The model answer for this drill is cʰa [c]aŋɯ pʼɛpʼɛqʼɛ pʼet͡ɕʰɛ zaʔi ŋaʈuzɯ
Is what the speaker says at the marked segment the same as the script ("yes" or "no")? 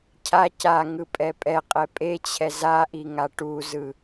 yes